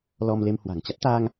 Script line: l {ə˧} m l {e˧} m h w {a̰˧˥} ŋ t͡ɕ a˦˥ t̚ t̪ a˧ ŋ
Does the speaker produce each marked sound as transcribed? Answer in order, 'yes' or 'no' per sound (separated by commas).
no, yes, no